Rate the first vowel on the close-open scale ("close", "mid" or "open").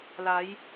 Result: open